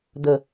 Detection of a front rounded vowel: absent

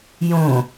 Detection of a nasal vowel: present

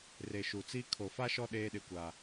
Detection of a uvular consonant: absent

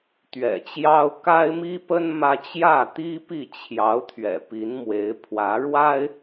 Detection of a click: absent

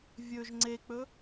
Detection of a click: present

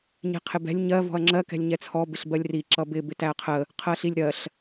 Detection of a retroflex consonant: absent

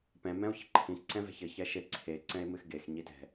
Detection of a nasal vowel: present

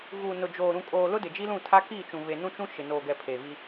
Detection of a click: absent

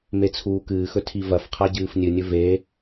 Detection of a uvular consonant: present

